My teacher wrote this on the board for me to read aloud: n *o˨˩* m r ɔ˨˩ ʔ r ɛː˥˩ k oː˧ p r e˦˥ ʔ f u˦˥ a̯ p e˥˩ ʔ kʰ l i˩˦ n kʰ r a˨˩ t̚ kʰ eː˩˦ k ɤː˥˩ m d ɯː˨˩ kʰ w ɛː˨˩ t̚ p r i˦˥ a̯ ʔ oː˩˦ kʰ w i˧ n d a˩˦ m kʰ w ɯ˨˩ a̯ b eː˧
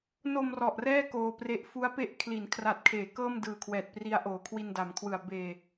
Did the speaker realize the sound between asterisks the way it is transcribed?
no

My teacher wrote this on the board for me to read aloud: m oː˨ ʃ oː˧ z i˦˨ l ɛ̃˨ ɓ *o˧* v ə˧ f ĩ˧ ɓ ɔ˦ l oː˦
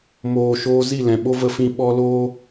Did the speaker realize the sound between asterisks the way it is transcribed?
no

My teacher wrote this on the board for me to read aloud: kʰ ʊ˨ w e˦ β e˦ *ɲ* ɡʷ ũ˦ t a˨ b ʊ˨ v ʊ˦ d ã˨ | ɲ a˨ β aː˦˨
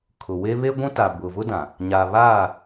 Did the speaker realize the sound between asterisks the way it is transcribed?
no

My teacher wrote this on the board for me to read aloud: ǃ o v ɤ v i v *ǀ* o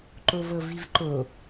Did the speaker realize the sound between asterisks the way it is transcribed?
no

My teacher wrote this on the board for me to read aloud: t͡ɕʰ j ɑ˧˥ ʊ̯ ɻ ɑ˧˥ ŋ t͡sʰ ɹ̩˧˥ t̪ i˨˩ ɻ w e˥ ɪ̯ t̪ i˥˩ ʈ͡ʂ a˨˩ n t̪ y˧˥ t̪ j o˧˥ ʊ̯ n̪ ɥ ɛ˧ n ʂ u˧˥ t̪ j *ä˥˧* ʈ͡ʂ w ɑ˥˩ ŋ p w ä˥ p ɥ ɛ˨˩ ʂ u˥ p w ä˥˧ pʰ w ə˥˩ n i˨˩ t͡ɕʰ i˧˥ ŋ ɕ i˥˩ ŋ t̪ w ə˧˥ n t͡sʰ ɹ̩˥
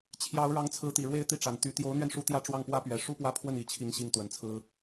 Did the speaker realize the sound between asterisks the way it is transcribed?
yes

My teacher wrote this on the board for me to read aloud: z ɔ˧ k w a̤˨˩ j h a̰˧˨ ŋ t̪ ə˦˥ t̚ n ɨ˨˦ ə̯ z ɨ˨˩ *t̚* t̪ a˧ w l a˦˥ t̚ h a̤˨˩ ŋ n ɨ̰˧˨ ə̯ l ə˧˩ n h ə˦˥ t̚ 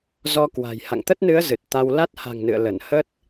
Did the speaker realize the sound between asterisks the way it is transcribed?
yes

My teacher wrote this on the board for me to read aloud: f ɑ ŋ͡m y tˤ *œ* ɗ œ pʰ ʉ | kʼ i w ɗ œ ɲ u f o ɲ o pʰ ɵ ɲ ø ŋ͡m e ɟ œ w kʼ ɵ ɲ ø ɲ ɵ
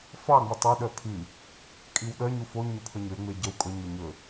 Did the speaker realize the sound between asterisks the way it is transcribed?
yes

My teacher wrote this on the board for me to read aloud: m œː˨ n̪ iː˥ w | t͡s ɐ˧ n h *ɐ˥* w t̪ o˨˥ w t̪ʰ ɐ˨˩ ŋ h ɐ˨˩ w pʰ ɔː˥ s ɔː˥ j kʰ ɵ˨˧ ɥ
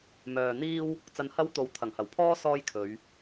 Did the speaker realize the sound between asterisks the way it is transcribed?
yes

